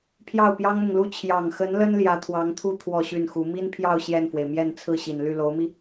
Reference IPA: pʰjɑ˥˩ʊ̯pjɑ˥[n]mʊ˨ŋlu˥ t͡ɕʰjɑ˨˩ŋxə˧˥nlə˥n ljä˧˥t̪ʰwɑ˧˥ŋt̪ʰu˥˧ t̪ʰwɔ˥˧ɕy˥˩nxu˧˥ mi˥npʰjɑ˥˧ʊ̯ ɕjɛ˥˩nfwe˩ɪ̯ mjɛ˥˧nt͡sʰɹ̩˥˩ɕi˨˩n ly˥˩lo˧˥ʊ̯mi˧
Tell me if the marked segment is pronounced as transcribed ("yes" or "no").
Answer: no